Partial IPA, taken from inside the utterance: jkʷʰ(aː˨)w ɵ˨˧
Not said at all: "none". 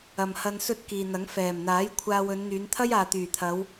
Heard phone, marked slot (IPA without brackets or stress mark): aː˧